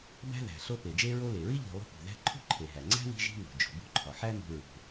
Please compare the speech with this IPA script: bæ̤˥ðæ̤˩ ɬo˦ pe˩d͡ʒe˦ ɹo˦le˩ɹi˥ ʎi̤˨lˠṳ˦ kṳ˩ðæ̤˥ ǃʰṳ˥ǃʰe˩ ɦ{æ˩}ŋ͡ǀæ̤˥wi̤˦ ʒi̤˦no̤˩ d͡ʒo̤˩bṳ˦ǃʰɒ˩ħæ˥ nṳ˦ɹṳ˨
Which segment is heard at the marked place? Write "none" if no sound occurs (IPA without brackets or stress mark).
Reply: æ˩